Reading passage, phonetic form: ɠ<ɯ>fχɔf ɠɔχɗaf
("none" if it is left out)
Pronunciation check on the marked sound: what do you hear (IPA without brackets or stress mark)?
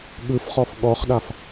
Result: ɯ